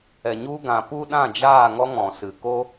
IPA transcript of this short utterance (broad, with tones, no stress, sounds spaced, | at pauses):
ɛ˨ ɲ u˧ ɡ ã˨ p u˦ ɗ ã˦˨ d͡ʒ aː˦˨ ŋ ɔ˦ ŋ ɔ̃˨ s ɨ˨ k o˦